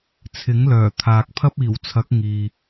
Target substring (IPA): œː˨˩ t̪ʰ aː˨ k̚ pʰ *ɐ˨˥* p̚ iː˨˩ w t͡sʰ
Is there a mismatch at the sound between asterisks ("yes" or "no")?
yes